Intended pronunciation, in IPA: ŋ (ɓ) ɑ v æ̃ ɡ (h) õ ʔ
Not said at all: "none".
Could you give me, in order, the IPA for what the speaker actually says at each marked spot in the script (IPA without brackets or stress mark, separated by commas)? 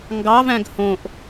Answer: ɡ, h